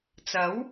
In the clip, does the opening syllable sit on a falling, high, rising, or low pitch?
rising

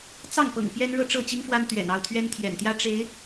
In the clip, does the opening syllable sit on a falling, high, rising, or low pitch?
falling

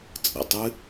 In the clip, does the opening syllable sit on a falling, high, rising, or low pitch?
low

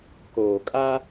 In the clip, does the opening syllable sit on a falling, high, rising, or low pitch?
low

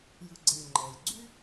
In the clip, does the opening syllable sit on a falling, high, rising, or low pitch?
low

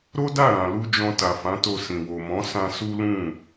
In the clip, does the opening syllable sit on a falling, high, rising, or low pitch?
high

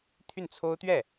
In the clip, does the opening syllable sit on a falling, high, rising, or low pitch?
falling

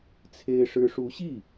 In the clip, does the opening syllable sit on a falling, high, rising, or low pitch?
high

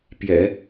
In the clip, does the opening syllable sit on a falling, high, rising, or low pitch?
low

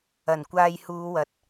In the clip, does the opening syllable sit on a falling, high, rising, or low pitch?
low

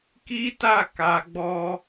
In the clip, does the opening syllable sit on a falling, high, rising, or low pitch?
high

